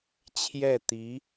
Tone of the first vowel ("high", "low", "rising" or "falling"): falling